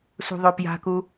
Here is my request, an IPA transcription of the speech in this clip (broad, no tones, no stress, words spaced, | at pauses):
sṳðˤopja̤ku